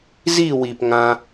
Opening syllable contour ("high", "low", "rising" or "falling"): falling